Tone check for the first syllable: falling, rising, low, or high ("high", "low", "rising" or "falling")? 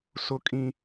high